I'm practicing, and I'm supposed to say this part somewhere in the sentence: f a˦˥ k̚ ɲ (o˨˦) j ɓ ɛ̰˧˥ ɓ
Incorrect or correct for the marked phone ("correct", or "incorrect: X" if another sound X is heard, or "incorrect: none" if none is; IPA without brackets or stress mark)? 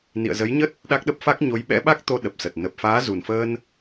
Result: correct